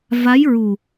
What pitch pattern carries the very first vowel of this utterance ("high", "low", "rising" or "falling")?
rising